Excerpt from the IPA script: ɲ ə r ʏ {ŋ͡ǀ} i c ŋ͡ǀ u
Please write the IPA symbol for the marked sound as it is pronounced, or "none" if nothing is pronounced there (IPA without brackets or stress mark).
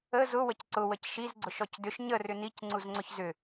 n